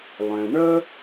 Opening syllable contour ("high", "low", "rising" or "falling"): low